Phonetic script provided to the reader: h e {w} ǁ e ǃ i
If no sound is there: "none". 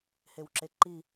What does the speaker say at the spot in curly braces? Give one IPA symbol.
w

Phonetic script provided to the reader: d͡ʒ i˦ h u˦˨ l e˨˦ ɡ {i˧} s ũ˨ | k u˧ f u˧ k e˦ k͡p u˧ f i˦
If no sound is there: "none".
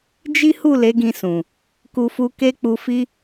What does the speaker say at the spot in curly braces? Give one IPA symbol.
ĩ˧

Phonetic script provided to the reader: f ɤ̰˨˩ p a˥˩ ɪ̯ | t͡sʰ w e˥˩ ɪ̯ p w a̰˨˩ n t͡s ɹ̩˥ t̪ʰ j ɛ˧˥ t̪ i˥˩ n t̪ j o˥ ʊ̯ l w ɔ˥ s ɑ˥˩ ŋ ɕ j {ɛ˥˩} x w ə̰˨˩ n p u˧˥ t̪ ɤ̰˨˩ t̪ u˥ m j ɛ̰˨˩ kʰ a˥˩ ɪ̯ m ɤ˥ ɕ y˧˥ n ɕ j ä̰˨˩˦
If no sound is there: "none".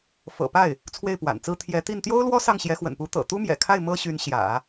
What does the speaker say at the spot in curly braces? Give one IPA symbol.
ɛ˧˥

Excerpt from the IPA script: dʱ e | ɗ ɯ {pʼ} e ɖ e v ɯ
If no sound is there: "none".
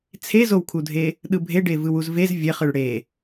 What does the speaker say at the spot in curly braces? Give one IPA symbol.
bʱ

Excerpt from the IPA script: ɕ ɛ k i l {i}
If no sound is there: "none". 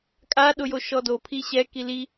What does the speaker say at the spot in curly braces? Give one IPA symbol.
i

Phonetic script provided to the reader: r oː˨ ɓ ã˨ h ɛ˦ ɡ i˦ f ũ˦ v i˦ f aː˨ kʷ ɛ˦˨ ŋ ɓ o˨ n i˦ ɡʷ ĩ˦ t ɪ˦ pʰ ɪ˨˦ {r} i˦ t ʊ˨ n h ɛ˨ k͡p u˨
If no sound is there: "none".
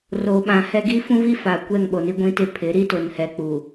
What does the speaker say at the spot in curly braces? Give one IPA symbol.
ɾ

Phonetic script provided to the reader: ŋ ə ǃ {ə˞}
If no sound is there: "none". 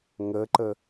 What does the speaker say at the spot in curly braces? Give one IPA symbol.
ə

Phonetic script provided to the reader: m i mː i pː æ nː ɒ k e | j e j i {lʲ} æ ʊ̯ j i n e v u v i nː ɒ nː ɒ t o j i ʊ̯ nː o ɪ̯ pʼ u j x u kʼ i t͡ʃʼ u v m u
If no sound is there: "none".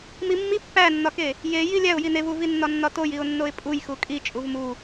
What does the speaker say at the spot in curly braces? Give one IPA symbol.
lʲ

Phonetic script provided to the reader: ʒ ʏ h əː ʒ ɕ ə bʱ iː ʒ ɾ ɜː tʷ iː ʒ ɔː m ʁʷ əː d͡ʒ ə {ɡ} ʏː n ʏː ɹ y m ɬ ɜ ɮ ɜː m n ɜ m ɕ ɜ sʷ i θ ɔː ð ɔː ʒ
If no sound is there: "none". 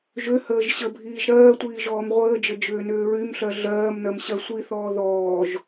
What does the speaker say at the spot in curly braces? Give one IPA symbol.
d͡ʒ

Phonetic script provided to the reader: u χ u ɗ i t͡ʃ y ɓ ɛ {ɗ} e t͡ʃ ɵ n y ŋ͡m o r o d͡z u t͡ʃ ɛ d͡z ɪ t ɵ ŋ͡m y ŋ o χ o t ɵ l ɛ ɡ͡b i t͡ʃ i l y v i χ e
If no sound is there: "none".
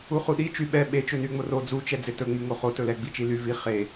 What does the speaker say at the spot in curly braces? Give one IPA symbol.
ɓ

